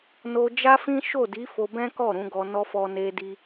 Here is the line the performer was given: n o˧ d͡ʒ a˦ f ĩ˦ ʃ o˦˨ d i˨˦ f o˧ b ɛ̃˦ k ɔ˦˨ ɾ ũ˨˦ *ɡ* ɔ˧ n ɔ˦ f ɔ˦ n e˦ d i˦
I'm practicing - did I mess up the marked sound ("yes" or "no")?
no